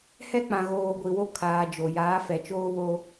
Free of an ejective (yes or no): yes